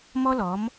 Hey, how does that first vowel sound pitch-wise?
high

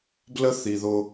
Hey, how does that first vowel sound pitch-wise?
high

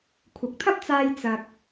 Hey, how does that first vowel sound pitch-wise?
low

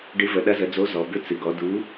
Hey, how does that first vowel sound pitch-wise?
rising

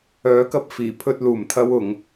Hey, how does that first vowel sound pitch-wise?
rising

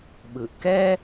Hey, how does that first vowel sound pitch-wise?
low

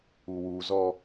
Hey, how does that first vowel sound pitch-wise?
low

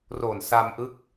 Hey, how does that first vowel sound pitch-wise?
low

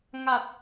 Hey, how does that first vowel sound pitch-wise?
low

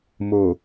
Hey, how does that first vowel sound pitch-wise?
low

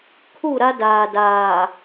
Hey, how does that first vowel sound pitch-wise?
falling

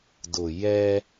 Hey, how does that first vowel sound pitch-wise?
low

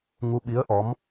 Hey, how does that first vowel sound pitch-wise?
rising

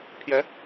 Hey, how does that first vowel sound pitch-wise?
rising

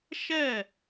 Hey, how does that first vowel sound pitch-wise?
falling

